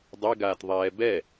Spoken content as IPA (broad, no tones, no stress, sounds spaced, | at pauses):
dˤ ɛ ɡ aː t ðˤ ɛː b ɛ